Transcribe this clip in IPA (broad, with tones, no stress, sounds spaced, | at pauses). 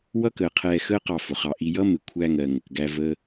w ʌ˦ k əː˨ qʰ ɛː˧ x əː˦ q ɑ˧ f ʊ˨ χ ɑ˧ ʔ i˧ j ʌ˦ m ɪ˨ kʷʰ æ˧ ŋ ɜ˨ ŋ ə˨ k ɡ æ˧ v ə˧